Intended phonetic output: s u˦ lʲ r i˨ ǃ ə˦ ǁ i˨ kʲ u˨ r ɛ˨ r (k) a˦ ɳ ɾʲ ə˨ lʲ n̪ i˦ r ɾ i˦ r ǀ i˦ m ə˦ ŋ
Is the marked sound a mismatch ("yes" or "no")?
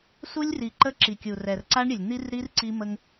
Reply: yes